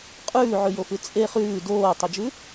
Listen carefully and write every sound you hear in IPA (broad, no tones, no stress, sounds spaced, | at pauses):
qʼ ʉː ʕ ʉ j o f ʉ t͡sʼ e χ ʉː d oː tˤ ɵ d͡ʒ ʉ